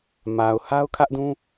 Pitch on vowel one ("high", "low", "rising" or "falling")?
low